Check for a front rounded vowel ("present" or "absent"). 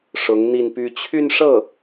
present